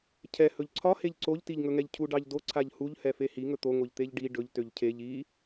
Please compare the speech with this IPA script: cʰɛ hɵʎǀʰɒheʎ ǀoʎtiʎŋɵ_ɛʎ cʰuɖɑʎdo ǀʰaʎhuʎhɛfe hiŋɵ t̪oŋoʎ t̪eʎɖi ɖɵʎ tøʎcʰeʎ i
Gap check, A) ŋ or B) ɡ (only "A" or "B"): A